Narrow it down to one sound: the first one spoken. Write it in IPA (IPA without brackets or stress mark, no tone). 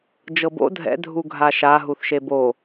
d͡ʒ